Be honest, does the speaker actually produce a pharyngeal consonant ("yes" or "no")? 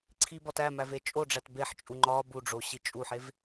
yes